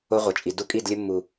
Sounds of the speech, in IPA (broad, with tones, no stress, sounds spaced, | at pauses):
o˦ ʁʷ ə˨ t͡ʃʼ i˨ d u˦ kʼ i˦˨ d lʲ ə˦ mː u˨